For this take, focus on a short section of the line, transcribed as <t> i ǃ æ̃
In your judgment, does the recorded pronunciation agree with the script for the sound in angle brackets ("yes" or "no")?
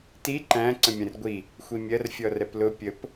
yes